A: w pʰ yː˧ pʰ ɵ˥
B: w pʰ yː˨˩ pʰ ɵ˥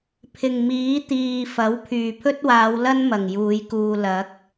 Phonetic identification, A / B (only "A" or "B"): B